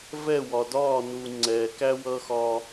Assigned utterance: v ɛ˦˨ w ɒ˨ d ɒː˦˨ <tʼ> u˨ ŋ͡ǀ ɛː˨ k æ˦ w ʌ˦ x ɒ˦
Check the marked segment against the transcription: incorrect: n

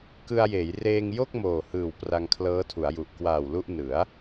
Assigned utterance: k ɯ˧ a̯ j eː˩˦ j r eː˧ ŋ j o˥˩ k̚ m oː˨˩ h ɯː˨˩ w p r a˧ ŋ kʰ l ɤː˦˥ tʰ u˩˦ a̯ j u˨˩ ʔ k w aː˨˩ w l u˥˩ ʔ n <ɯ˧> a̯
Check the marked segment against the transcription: incorrect: ɯ˩˦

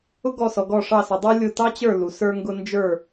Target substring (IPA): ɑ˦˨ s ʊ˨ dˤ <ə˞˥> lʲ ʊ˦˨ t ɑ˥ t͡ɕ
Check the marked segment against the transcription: correct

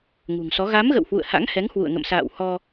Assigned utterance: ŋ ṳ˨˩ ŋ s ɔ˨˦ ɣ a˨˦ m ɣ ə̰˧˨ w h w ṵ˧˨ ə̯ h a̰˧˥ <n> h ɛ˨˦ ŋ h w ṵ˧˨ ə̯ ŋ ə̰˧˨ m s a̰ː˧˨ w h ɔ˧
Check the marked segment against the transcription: incorrect: ŋ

